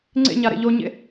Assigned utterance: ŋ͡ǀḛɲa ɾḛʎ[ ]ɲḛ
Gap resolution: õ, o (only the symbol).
o